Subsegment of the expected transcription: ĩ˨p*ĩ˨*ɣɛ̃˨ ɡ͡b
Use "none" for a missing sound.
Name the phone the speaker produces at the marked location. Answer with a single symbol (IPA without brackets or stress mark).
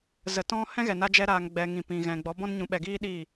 ĩ˨